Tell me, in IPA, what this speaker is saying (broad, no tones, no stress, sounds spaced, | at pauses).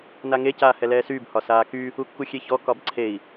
n a ŋ e c aː h ɛ l ɛː s yː b h ɒ s aː k y | u kː u xʲ e ç ɔ k ɒ b ǀʰ e i̯